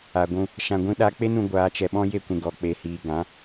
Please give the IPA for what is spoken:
a˨ɡʷũ˧ | ʃã˧ɡʷĩ˦ɗa˦ k͡pe˦nũ˧ ɡʷaː˧t͡ʃɛ˧ɓɔ̃˦ je˦kʷĩ˨ɡɔ˨ k͡pe˨hiː˨ ɡã˨˦

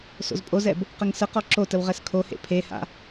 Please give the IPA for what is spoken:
so̰zpʼozɛb | qəŋsəqɔ ǁotəw ʁɛskʰohḛ pʰeha̰

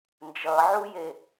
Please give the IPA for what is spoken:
nd͡ʒʌʕuje

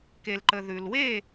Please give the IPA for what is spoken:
ke˩lǃə˩ ðʉ˩lwe˥˨

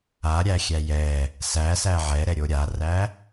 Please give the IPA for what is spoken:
aɾʲæxʲæ jɛ | sæsæ ʕɛɾɛɾʲo ɾʲaræ

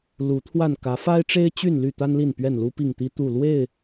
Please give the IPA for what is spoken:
lu˨˦ t̪ʰwa˥˨n kä˨˦fa˦ɪ̯ʈ͡ʂe˦ɪ̯t͡ɕy˥˨n ly˥˨t̪a˦nli˥˨n pɥɛ˥˨nlu˦pi˥˨ŋt̪i˦ t̪u˥˨ lwe˥˨ɪ̯

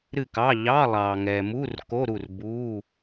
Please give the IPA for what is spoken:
ɾɨ˥˨kɑ˧˥˧ ʎɑ˧˥˧ lˠɑː˨ŋɛ˨muː˧˥˧r ko˧˥˧ ɾu˥˨rbuː˧˥˧

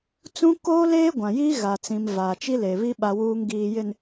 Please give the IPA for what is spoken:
t͡sũ˦ koː˦leː˦ ɡʷã˨jiː˦ ɣa˨t͡sĩ˨m vaː˨t͡ʃi˦le˨βi˦ ɓa˨wuː˨ŋ ɡiː˨jɪ˨n

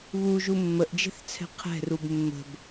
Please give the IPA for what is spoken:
βuʒu mːəʔd͡ʒɛ̤θt͡sʰɛ̤ qʰɛ̤rub mːə̤b

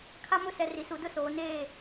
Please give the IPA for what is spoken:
kʰa˦mʊ˦sɛ˨ ri˨su˨dʊ˦soː˨ neː˦˨

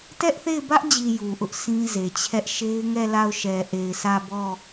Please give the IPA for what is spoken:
tɛ˦ʔθe˦˨ɪ̯bä˦ʔd͡ʑi˨ ju˨ʔʊ˦ʔ sĩ˦ze˨t͡ɕʰɛ˦ʔ ʃe˦ɪ̯ŋɛ˦˨la˦˨ʊ̯ ʃɛ˨ʔe˨ɪ̯sä˦˨ bɔ˦˨

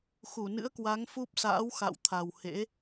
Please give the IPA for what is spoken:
xu˧˩nɨ̰˧˥ə̯kwa˨˦ŋfu˦˥p̚ sa̰ː˧˥w xa̰˧˨wt̪ʰa˨˩w hḛ˧˥

